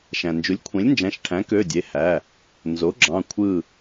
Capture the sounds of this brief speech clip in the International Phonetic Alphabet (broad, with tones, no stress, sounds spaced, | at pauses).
ʃ æ̃˩ n d͡ʒ u˩˥ lʲ kʷʰ ẽ˩˥ lʲ n d͡ʒ æ̃˩˧˩ ʃ ʈʰ æ̃˩˥ k ø˩˧˩ dʲ e˩˧˩ h æ˩˧˩ | n z o˩˥ ɡ͡ǁ ɑ̃˩˧˩ kʷʰ ɯ˧˩